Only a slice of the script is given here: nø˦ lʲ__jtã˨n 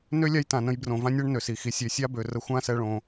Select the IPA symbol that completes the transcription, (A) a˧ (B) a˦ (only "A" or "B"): B